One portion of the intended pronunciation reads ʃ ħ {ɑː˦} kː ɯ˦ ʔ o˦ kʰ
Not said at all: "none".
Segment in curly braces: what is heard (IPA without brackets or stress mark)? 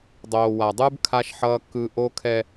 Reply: ʌː˦